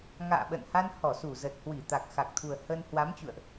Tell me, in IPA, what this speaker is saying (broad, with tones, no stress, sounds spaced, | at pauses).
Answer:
ŋ a̰ː˧˨ ɓ ə̰˧˨ n h a˧ n h ɔ˧˩ s u˧˩ z ə˨˩ t̚ h w i˧˩ t̪ a˨˩ k̚ x a˨˩ k̚ t̪ʰ u˨˩ ə̯ h ə˧ n h w a˨˦ m t͡ɕ ṵ˧˨ ə̯ ʔ